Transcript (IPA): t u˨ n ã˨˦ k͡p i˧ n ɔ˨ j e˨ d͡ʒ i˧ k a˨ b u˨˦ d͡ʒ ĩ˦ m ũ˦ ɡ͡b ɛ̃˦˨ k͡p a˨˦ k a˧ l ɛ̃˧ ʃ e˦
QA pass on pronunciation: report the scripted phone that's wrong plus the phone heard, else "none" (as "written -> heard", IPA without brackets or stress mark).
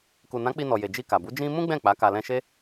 t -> k